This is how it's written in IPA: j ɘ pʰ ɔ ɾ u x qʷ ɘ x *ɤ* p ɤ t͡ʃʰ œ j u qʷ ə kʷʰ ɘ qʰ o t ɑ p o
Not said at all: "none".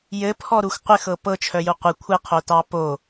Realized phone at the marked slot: ɤ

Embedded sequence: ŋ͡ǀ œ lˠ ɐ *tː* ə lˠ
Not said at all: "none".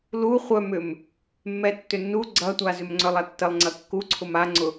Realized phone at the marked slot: tː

